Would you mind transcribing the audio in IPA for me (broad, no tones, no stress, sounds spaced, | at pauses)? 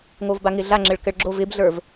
ŋ o v b a ŋ ɪ ɮ a ŋ͡ǁ ɘ ɭ k ɘ ɭ ɡ͡ǁ o v ɪ b ɮ ə˞ v